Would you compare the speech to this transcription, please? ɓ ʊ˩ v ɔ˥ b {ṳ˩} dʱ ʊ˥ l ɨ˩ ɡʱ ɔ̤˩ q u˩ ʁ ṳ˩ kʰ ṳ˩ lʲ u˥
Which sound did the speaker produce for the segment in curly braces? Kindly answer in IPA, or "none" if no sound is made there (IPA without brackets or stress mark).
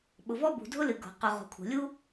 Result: ṳ˩